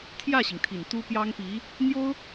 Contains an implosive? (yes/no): no